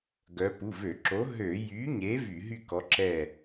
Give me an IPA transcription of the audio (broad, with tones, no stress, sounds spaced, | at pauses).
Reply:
ɡ œ˨˥ p u˩˧˩ v ø˧˩˧ ǁ o˨˥ ɦ ø˧˩˧ j y˨˥ ɲ e˨˥ v y˧˩˧ ɦ y˥˨ k ɔ˨˥ ǁ ɛ˥˨